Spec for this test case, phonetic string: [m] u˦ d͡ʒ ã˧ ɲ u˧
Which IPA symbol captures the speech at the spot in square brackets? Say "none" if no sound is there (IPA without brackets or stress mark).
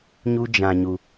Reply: ɲ